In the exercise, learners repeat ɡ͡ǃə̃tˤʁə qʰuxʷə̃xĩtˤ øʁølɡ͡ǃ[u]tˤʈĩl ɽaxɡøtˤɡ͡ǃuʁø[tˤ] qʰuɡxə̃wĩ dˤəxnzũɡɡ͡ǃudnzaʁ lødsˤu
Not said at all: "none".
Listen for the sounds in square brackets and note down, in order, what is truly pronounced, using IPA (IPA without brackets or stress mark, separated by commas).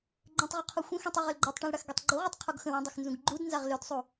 ø, tˤ